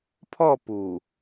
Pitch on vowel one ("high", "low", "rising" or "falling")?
falling